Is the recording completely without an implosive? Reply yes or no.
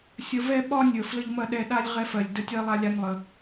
no